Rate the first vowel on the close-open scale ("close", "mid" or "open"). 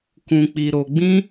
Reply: close